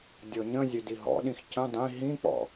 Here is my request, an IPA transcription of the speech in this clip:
dʲ ɔ ɲ ə̃ zʲ ø d i ɦ ɔ̰ ɗ ĩ x c ə̃ dˤ ĩ ɦ ĩ k͡p ɔ̰

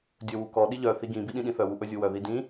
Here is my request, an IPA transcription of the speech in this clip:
dʲ ɵ w u k ɔ ɗ i ʎ œ θ i ɡ ĩ b i ɗ ĩ ɗ ĩ θ œ w u ʔ ɵ zʲ u w œ ð i d ĩ

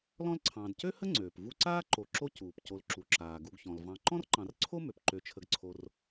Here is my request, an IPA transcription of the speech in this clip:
l ɔ̃˦ l ǀʰ ɑ̃ː˨ d c ø˥ h ə˥ ŋ͡ǀ øː˩ p v u˦ ǀ aː˥ ǃ o˨ ǁ o˦ c uː˩ p c o˨ l ǁ u˩ ǁ aː˩ ɡ u˨ ɡ ç ɔ̃˩ l v ɑ̃˨ ǃ ɔ̃˥ r ǃ ɑ̃˨ r ǀʰ o˥ m ø˩ p ǃ ø˨ t͡ʃʰ ə˨ ɡ ǀʰ o˨ r

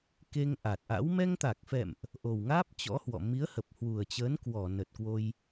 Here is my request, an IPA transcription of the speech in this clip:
k e˧ ŋ ʔ a˨˩ t̚ ʔ a̰˧˥ w m ɛ˧ ŋ t̪ a˨˩ k̚ f ɛ̰˧˨ m ʔ | ʔ o˨˩ w ŋ aː˦˥ p̚ t͡ɕ ɔ̰˧˥ h w ɔ̰˧˨ m i˨˦ ə̯ h ə˨˩ p̚ h w u˨˩ ə̯ t͡ɕ əː˨˦ n k w ɔ˧˩ n ə˨˩ t̚ k w o˧ j

